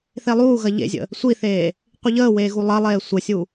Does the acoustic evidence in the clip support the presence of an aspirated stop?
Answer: no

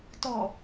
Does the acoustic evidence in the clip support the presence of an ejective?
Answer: no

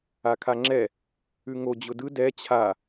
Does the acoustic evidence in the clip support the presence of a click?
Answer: yes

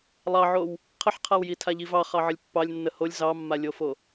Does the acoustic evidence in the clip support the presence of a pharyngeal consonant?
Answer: yes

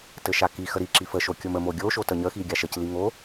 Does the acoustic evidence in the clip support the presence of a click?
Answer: yes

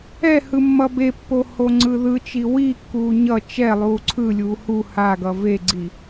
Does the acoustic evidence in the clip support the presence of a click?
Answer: yes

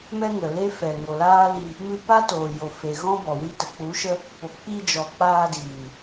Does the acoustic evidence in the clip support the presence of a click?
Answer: no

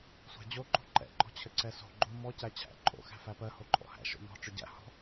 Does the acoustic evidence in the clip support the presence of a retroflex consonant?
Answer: yes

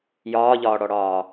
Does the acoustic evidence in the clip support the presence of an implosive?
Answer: no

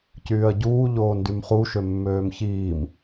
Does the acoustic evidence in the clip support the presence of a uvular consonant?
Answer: yes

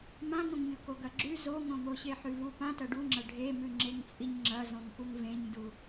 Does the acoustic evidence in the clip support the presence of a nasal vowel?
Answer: yes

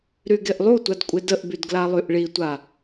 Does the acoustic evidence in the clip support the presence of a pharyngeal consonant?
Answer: no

